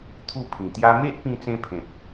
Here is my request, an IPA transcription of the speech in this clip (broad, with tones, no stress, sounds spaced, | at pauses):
t̪ʰ u˥˧ pʰ ĩ˨˩ t̪ j a˦ m e˦ ʔ p ĩ˧ t͡s ẽ˧ pʰ ẽ˨ p̚